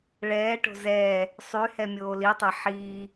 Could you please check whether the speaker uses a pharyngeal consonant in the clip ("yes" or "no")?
yes